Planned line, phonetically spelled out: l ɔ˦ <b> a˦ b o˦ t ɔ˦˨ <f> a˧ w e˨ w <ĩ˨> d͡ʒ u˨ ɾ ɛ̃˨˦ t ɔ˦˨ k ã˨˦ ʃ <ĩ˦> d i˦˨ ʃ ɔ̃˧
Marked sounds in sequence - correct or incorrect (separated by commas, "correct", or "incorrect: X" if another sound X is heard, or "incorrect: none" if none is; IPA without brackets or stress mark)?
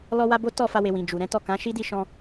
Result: incorrect: w, correct, correct, incorrect: i˦